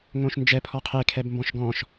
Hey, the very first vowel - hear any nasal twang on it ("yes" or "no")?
yes